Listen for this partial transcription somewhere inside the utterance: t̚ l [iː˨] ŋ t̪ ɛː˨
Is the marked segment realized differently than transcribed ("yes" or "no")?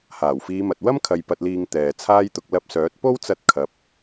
no